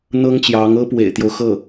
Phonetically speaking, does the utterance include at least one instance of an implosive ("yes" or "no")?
no